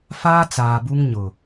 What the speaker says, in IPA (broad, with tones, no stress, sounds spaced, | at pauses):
f aː˦ t͡s aː˨ b u˦ ŋ ɲ ʊ˨